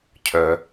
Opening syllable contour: low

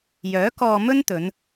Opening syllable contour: rising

